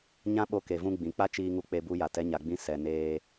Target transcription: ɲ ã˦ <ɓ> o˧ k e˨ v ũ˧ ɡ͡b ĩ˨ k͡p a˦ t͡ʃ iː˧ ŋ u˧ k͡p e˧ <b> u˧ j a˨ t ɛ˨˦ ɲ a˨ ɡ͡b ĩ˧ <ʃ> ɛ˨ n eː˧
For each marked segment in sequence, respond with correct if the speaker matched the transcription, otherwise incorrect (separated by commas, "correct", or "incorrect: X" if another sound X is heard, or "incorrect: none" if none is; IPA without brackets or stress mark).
correct, correct, incorrect: s